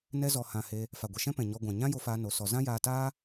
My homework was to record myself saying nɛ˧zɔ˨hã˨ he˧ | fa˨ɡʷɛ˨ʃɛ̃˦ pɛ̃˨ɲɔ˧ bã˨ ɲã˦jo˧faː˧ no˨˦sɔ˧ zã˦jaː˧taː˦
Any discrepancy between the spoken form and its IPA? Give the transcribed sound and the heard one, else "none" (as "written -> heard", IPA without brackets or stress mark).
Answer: b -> ɡʷ